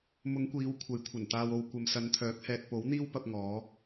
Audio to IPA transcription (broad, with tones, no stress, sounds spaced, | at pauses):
m ʊ˨˧ ŋ kʷ iː˨˧ w kʷʰ ɐ˨˥ j kʷʰ ɐ˨˩ n t̪ aː˨ w o˨ w kʷ ɐ˨ m s ɐ˨˧ n t̪ʰ œː˨˥ k̚ h ɛː˨ t̚ p o˨˥ w n̪ iː˥ w p ɐ˥ p̚ ŋ ɔː˨˥